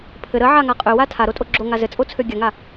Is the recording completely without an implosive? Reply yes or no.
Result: yes